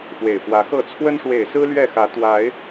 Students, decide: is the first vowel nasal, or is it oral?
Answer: oral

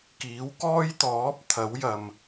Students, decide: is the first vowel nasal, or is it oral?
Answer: oral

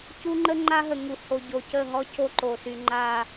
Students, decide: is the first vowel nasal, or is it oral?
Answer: oral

